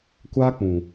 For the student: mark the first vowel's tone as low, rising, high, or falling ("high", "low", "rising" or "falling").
high